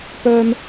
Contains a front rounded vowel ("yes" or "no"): yes